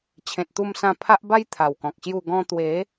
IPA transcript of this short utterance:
t͡ɕʰ ẽ˨ t̚ t̪ u˧ m s ã˧ pʰ a˦ ʔ b a˦ j t̪ʰ a˨˩ w k ɔ̃˨ k̚ ɕ j u˥˧ ɡ ɔ̃˧ t̪ w e˨˦

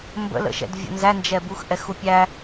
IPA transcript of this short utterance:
m b ə̰ l ə̰ ʃ ɛ̰ d vʲ ə̰ n z æ n d͡ʒ ɛ b u x ʔ ɛ x u pʲ æ

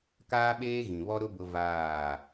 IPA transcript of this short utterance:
k aː˦ ɓ eː˦ ɣ ĩ˨ β ɔ˦ ɾ ʊ˦ b ʊ˦ v aː˦˨

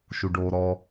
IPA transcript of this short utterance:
ʃ u ɖ oː ɾ ɔ

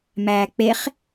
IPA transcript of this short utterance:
m æː k͡p e χ

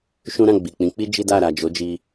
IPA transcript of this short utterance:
ʃ ũ˦ ɾ ã˦˨ ɡ͡b i˨ k͡p ĩ˨˦ k͡p i˦ d͡ʒ i˦ d a˦˨ ɾ a˨ d͡ʒ o˨˦ d͡ʒ i˧

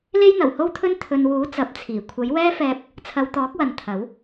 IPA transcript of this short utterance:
l e˥ j n̪ ɐ˨˩ w h o˥ w t̪ʰ ɵ˥ n t̪ʰ ɵ˨ n w uː˨˥ t͡s ɐ˨˥ p̚ t͡sʰ iː˨˩ kʷʰ ɐ˨˥ j w ɛː˥ f ɛː˧ p̚ | t͡sʰ ɐ˨˧ w t̪ ɔː˨˥ k̚ w ɐ˨ n t̪ʰ ɐ˨˥ w

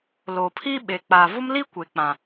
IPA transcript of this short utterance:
l o˨ pʰ i˦ ɓ e˨ k͡p a˨ v ʊ˦ m l i˦ kʷ e˨ k͡p ã˨

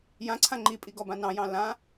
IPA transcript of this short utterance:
j ã ǀʰ ã ŋ͡ǃ i pʼ i ɡ ɔ b ã n ɑ̃ j ɑ̃ l ã

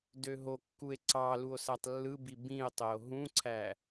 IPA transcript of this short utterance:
d ø ɦ o kː u e̯ ǀ ɑ l u o̯ s æ tˤ lː ɯ b i b ĩ e̯ tˤ e o̯ ɦ ũ ǀʰ æ

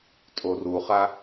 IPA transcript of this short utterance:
tʼ o r u χ a

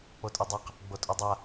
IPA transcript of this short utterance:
k͡p o tʼ ʉ dˤ a q | ɡ͡b o tʼ o dˤ a

